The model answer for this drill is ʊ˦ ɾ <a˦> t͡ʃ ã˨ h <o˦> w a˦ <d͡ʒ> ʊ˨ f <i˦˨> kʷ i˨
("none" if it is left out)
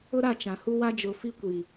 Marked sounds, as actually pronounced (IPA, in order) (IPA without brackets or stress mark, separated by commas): a˦˨, u˦, d͡ʒ, i˦˨